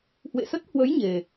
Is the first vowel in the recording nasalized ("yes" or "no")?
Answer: no